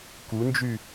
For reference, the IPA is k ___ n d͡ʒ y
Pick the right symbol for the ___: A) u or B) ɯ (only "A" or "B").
A